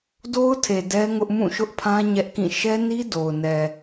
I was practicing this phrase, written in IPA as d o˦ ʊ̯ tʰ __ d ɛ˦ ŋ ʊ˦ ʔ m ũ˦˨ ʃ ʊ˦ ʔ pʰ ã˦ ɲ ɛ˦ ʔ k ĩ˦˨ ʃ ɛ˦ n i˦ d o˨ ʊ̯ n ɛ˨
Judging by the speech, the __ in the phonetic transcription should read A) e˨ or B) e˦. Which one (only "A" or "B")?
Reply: A